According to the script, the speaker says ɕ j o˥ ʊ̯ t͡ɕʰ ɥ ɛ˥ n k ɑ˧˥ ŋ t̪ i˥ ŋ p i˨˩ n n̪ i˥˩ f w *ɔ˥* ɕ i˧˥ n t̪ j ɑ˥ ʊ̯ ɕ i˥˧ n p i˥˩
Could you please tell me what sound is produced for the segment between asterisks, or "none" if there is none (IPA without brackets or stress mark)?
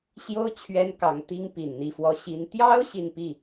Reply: ɔ˥